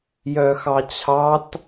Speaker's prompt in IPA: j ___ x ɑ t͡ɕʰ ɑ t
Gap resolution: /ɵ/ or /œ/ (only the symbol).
œ